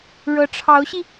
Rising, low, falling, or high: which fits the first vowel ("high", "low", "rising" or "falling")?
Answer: rising